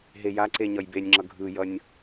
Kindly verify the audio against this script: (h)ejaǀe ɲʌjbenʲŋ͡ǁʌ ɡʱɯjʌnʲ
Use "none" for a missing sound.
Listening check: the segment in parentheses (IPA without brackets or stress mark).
ɦ